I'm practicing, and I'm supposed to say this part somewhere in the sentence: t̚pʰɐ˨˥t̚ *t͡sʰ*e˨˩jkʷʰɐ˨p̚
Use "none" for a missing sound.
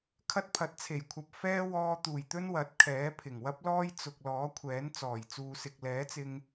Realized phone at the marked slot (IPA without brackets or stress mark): t͡sʰ